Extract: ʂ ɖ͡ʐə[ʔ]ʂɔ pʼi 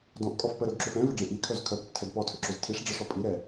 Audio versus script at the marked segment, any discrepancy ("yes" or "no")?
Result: yes